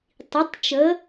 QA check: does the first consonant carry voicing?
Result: no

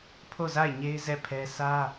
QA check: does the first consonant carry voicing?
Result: no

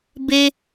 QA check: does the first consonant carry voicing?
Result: yes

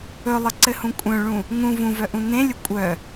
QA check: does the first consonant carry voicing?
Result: yes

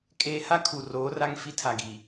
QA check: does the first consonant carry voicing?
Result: no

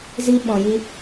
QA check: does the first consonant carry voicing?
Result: yes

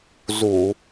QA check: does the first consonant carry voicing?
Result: yes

